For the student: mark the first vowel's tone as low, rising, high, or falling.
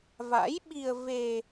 rising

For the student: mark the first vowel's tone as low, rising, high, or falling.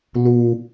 high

